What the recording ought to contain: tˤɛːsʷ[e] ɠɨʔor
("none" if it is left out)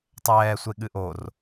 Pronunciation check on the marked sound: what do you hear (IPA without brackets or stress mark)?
e